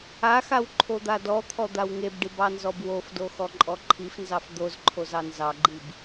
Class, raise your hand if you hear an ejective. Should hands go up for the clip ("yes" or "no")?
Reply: yes